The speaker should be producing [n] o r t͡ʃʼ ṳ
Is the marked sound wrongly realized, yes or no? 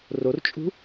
yes